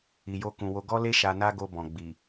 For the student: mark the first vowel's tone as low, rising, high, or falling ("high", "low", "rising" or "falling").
low